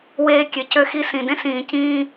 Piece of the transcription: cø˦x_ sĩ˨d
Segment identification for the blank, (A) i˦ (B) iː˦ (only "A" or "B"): A